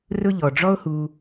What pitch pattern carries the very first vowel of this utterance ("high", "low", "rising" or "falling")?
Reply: high